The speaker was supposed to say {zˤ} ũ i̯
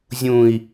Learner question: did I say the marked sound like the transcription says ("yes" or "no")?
no